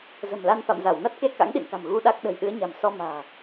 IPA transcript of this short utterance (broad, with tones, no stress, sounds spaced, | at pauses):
z ə̤˨˩ m l a˧ n f a̰˧˨ m z a˧˩ w n a˦˥ t̚ k e˧ k a̰˧˥ ŋ ɗ ḭ˧˨ n k a̤˨˩ m ɣ u˧ ɗ a˦˥ k̚ ɗ ə̤˨˩ j ɗ ɨ˨˦ ə̯ ɲ a̤˨˩ m s ɔ˧ m a̤ː˨˩